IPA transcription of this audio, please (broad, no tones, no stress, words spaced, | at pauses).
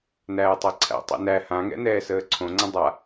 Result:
næːtˤæǀʰæ̰ tˤɛ̰næ hãŋɛ̰nɛː səːǀʰõ ŋ͡ǀə̃dˤa